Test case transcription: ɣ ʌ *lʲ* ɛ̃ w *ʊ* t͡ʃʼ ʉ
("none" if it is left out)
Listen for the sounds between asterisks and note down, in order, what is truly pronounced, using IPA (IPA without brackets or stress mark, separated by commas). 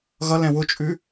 l, ʊ